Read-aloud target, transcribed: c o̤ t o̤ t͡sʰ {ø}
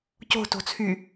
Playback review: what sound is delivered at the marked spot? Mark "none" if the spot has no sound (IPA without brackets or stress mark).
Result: y